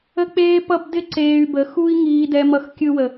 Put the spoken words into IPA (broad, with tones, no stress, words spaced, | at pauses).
ə˦k͡peː˦pʌ˦bdɪ˦ ǀeː˧y̯bə˨˦xu˦i̯ ŋiː˧dɛ˧mʌ˧xkʲɯ˧ wə˨